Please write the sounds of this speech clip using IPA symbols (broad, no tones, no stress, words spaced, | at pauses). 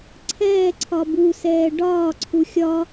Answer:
ǀʰɛːǀʰɒ busɛː ɖɒːǀʰu xʲɒ